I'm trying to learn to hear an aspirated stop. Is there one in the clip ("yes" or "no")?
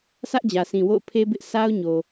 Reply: yes